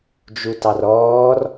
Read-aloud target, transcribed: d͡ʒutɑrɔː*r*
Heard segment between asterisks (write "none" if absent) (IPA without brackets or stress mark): r